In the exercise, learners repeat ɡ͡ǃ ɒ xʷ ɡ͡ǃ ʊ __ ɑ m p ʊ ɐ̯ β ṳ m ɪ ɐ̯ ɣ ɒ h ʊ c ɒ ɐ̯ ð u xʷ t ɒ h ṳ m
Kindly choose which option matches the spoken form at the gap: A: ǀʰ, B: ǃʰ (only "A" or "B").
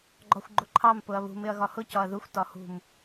B